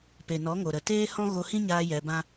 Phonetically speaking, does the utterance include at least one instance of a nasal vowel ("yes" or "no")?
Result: yes